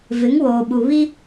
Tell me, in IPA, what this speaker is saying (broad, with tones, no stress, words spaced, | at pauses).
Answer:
vɪ˨˦ŋwoː˨ ɓu˨ βi˦